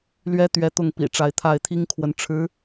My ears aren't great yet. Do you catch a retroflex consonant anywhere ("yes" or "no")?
yes